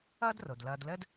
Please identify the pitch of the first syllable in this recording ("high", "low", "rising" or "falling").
high